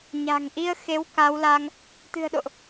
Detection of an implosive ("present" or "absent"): present